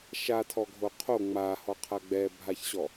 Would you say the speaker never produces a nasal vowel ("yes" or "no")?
yes